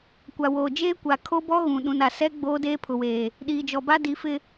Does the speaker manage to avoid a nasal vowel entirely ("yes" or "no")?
no